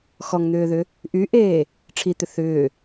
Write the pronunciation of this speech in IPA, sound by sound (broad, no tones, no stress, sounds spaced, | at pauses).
x ɔ ŋ n̪ ʏː ð ʏ | ʔ y ʔ eː | ʈ͡ʂʰ i t̪ ʏ θ ʏː